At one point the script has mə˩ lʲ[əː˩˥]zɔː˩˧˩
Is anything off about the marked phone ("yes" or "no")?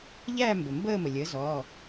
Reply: no